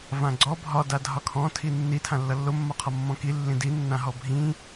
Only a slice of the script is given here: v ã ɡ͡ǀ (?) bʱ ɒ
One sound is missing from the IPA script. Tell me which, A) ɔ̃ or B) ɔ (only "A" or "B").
B